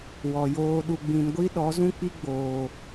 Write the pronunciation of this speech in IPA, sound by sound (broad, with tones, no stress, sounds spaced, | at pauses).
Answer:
w ɔ˨ j oː˧ ɗ u˨ ɡ͡b ĩ˨ n ɡʷ i˦ ɗ ɔ˨˦ z ũ˦ k͡p i˦ ɡ͡b oː˨